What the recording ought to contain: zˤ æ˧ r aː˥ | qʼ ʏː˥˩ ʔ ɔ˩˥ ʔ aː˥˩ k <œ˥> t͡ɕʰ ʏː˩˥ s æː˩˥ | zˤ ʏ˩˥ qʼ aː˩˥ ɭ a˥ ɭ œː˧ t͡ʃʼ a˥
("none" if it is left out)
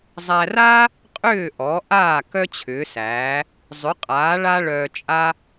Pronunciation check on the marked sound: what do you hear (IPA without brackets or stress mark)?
œ˥